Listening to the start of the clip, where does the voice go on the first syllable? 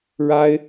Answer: high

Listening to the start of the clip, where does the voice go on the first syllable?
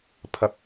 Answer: high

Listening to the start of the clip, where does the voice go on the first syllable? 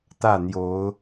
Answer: falling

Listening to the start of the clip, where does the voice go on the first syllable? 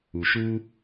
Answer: low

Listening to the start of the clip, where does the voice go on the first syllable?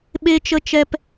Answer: high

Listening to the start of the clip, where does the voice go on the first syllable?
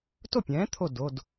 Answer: falling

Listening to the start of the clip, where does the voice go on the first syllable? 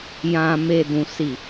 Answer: low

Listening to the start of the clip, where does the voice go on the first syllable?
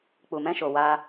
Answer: low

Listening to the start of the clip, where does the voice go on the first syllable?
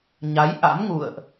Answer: rising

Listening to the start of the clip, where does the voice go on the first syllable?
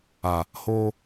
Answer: low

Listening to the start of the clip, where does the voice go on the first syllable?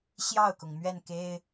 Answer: falling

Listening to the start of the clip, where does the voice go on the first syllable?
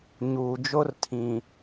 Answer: low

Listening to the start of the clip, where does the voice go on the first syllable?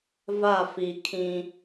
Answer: falling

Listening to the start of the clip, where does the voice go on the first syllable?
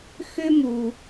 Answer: high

